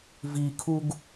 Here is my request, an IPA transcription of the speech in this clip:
vikʰuɡ

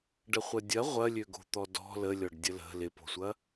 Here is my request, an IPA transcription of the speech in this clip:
ɖəχʷɐdʲɐ ʁʷɐlʲø ɡo̤t̪ɔdɔ̤ ləlʲɔɖdʲə lə̤ lɪpo̤sʷɐ

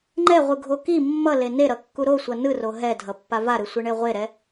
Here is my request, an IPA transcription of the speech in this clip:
ŋ͡ǃɛʁʷɯɡʱo ki mːʌle neɾʌkːu ɾosʷʌ nɯro ɦɛdʱʌpːa vaɾɯsʷɯɳe ʁʷeɾɛ

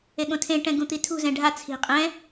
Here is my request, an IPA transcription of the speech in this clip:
eɠõtʰẽʈɛ̃ ɡũt̪itʰṳzɛ̃ ɖʱa t͡sʰi̤ qʼɛ̃

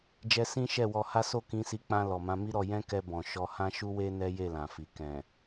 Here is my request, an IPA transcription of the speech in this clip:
d͡ʒɛ˦ sĩ˦ ʃɛ˦˨wɔ˧ha˦ so˦˨kĩ˧si˧ k͡pã˧ lɔ˨mã˨˦mi˦ɾɔ˧ jɛ̃˦kɛ˧bɔ̃˨ ʃɔ˧hã˦ʃu˦we˦ nɛ˦je˦˨lã˨fi˨ kɛ̃˨

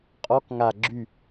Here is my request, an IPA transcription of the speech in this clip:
qʼɔk ŋa ɡ͡ǁy

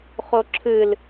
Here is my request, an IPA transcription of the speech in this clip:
χoǁʰɨl

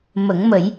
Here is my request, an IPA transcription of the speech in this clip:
mə˨˩˦ŋmə˨˩˦j

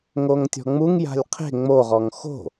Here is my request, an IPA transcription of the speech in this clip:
ŋoŋtʲɔ̤ŋ͡muŋja̤lʲ qʰe̤ ŋ͡moʁɔŋ xo̤

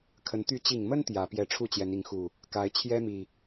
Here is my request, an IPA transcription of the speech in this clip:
kʰə˨˦n t̪y˨˦t͡ɕi˨˩ŋmə˦n t̪jä˨˩ pjɛ˨˦ʈ͡ʂʰu˥˨ t͡ɕjɛ˨˦ni˨˦ŋxu˨˩ | ka˨˦ɪ̯ t͡ɕʰjɛ˦mi˨˩

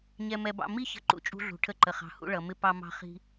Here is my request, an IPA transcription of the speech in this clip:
ɲɛ˧mɛ˧bɑ̰˧ mi˥çə̤˧ ǃṵ˧t͡ʃʼṳ˧ɮṳ˩ ʈʰə˧ǃə˩χɑ̤˩hṵ˧ ɭʌ˩mɪ˧ pɑ˧mɑ̤˧ χi̤˧

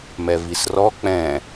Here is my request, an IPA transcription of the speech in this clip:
mɛvisrɔ k͡pɛ̃

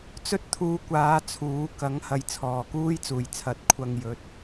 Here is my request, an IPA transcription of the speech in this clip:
t͡sɵ˥t̚t̪ʰuː˧kʷaː˨˧ t͡sʰuː˨˥ kɐ˨˥ŋhɐ˨˧j t͡sʰɔː˨˩kuː˥j t͡suː˨˩jt͡sʰɐ˨˥t̚ kʷʰɐ˨ŋjɵ˨˥t̚

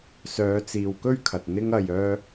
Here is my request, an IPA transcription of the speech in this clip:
sœː˨˧t͡siː˨wkɵ˥ɥkʰɐ˨t̚ n̪ɪ˧ŋɐ˨jœː˧

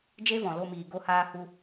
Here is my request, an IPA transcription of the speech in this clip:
d͡ʒe˦vɔ̃˨lo˧miː˨ ɡo˧haː˧hu˧

